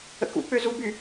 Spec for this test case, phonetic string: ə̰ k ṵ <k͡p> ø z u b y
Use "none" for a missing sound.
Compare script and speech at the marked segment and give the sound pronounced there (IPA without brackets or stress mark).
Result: k͡p